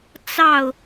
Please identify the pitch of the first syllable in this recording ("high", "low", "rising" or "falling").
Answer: falling